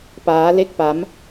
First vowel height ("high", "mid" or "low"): low